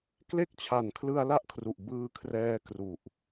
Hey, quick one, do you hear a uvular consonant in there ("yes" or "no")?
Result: no